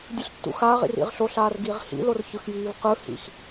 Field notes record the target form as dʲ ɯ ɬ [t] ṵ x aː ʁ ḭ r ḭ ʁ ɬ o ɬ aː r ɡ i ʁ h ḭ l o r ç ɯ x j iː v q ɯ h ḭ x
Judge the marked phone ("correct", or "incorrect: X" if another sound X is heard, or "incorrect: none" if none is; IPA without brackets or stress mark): incorrect: tː